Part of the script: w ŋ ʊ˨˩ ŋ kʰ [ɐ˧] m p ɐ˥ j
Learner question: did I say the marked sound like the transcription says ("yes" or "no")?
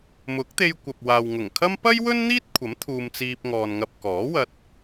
no